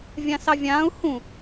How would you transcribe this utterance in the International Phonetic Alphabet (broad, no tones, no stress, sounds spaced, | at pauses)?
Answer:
vʲ ã s ɑ vʲ ãː u̯ h ũ